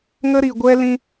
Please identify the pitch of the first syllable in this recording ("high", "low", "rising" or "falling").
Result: high